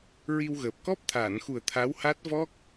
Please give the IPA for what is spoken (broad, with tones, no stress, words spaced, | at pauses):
ɹi˧wɣəː˨˩p̚ kɔ˦˥p̚t̪ʰaː˨˩˨nxu˨˩ə̯ t̪ʰa˧˥wha˦˥t̚ vɔ˦˥k̚